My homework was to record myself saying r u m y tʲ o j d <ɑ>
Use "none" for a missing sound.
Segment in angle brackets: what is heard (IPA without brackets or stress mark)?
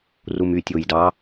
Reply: ɑ